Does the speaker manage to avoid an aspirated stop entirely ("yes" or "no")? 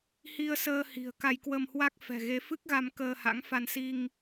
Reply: yes